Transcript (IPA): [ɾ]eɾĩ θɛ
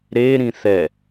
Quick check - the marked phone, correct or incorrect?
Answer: correct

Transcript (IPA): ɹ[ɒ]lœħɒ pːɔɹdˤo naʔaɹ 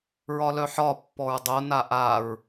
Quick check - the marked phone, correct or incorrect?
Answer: correct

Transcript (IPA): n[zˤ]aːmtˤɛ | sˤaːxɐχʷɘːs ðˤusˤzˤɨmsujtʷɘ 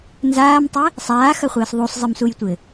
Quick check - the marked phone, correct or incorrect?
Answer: incorrect: z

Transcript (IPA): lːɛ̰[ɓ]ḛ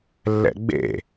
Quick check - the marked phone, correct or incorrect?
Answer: incorrect: ɡ͡b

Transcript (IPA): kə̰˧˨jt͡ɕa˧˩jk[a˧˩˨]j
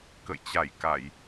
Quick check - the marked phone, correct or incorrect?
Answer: correct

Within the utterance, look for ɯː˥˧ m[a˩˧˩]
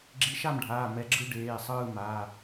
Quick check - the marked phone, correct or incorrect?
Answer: correct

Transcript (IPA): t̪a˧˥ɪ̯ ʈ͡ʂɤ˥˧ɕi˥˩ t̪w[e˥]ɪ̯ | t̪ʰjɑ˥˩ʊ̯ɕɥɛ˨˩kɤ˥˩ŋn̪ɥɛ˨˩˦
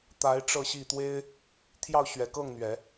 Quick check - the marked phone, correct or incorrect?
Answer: correct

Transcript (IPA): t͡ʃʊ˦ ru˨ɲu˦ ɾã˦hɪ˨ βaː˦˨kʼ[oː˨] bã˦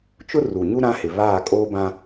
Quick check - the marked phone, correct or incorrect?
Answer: incorrect: oː˦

